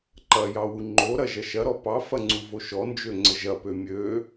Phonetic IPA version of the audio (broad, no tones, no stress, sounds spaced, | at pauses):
ǃ ɐ j ɑ w u ŋ͡ǃ o ɾ ɐ ʒ ɐ ʃ ɐ ɾ ɔ p ɑ f ɐ ŋ͡ǀ u v o ʃ ɔ n d͡ʒ ø ŋ͡ǀ ə ʒ ɐ p ø mʲ ø